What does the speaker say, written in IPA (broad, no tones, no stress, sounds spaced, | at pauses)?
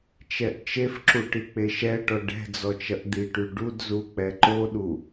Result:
t͡ʃ ɛ ʔ t͡ʃ e f ǁ u ʈ i k͡p e ʃ ɛ ʈ ɔ ɖ ɛ̤ d͡z ɔ t͡ʃ ɐ ʔ d̪ i ʈ y ɖ u d z u k͡p ɛ ǃ o ɗ u